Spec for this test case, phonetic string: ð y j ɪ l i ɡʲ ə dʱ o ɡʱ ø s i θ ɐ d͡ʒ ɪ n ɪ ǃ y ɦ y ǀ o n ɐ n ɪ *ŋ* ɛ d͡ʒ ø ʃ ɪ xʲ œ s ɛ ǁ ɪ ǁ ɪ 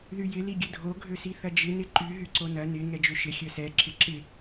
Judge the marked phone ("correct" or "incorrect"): correct